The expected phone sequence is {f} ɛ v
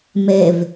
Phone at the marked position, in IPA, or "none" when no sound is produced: m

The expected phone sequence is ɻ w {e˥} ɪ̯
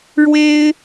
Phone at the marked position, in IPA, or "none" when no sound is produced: e˥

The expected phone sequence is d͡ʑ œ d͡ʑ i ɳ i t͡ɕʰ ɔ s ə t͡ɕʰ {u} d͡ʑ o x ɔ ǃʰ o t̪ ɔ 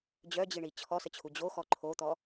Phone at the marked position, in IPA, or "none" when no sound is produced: u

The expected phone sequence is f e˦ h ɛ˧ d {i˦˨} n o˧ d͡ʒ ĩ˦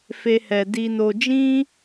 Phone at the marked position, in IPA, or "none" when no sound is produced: i˧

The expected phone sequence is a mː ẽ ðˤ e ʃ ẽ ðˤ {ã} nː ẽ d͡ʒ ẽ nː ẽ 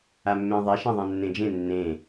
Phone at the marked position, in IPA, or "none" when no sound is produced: ã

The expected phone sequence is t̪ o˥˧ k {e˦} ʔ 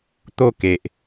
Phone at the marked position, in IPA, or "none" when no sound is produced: e˨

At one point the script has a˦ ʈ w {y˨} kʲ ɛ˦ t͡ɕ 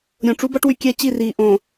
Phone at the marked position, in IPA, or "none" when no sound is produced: y˨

